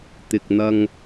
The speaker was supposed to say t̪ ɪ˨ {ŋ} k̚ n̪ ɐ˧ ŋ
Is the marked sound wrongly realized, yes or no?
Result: yes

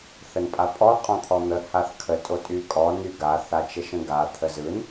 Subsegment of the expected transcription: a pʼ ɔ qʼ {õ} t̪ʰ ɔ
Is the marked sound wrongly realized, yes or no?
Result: yes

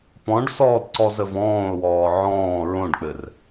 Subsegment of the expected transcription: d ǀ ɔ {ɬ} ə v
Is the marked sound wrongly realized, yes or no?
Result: yes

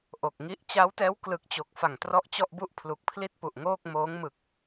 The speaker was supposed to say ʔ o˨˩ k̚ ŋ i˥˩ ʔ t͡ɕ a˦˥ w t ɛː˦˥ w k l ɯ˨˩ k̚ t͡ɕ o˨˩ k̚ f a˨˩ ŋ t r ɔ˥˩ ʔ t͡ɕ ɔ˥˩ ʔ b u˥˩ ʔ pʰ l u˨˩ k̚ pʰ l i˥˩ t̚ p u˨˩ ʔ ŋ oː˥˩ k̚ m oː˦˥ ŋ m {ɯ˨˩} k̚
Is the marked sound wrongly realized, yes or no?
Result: no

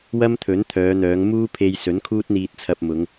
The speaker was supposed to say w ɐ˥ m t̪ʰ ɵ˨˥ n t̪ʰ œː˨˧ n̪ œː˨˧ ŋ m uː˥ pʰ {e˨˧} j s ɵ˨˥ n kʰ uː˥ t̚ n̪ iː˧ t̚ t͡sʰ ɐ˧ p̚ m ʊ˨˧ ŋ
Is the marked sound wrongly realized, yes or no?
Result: yes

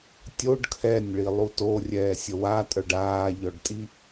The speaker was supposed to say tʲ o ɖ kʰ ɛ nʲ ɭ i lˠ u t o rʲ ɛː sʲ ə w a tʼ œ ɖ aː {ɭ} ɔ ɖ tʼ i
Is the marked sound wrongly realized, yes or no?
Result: yes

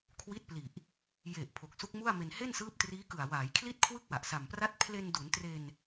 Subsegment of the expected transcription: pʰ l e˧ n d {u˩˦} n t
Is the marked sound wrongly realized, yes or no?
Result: no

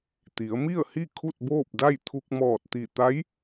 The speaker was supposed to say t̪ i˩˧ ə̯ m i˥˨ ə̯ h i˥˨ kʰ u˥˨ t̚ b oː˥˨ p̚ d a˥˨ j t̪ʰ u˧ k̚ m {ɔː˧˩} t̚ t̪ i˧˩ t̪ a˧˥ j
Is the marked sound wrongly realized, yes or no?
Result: no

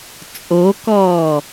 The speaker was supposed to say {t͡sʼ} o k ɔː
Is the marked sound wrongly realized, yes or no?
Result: no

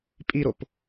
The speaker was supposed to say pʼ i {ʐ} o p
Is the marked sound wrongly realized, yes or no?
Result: yes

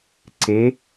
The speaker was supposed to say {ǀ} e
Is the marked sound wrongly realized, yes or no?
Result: no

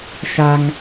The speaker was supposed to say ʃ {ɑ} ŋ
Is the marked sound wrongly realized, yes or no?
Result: yes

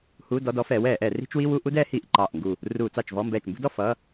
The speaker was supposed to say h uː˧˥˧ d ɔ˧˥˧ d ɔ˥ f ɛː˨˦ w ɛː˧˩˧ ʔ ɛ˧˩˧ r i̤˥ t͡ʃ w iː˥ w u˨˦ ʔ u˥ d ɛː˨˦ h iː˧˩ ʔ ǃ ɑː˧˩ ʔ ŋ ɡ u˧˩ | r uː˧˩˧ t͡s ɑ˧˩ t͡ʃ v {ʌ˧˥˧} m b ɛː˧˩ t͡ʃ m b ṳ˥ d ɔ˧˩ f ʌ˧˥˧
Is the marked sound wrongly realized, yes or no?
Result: yes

